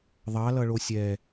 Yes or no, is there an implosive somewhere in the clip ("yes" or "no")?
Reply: no